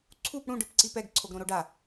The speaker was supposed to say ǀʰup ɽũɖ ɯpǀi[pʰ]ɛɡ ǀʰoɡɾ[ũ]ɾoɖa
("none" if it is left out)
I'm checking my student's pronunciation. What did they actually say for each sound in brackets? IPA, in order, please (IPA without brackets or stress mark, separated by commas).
p, õ